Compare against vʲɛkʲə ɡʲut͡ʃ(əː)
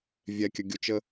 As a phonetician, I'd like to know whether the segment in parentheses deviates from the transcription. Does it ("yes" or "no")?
yes